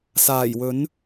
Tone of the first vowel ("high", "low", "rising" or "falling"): low